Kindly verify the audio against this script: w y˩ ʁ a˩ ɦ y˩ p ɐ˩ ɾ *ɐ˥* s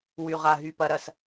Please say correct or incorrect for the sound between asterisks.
incorrect